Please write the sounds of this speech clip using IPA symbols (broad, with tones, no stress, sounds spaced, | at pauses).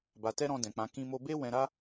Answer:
b a˨ t ɛ˧ ɾ ɔ̃˧ d ɛ̃˨ k͡p ã˨˦ k ĩ˧ m o˧ b e˦ w ɛ̃˧ ɾ a˦